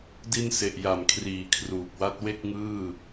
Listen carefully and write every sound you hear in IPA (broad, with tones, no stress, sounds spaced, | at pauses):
d i˧ n s e˨˩ ʔ j a˨˩ m kʰ r iː˨˩ kʰ r uː˨˩ k̚ w a˦˥ t̚ w e˥˩ k̚ ŋ ɯː˥˩